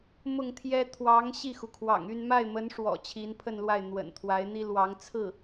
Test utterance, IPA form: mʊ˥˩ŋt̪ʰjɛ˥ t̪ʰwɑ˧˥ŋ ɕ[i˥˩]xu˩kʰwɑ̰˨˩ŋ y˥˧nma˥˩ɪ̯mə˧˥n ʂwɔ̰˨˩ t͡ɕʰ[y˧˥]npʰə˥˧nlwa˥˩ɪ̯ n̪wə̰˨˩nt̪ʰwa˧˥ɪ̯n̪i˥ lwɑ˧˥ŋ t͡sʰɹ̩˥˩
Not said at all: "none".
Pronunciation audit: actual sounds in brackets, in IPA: i˥˩, i˧˥

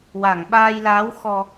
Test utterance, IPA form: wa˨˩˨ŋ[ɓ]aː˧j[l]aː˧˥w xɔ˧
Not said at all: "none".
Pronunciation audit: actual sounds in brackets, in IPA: ɓ, l

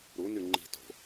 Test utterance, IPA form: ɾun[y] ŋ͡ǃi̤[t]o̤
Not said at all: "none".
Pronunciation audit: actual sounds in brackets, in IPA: y, t

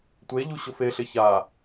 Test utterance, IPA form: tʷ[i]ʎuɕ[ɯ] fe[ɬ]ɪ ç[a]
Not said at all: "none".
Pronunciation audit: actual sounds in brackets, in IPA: e, ʊ, ɬ, a

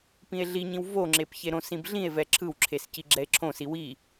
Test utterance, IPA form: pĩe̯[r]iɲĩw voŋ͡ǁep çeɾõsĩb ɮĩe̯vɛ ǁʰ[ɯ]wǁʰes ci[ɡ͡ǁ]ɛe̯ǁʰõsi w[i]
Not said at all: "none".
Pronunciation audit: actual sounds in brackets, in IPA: ɮ, ɯ, ɡ͡ǁ, i

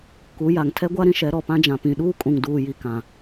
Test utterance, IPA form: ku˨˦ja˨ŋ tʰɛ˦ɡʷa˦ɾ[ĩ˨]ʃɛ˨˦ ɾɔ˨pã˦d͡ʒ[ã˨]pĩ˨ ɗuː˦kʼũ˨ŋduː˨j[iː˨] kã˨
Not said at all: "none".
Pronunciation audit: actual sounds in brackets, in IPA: ĩ˨, ã˨, i˨

